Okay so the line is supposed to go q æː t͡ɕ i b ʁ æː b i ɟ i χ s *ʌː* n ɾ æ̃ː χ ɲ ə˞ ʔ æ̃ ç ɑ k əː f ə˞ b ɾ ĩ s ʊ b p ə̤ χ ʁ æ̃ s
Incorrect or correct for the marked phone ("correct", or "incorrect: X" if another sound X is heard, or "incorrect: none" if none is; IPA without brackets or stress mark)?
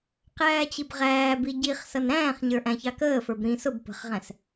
incorrect: ʌ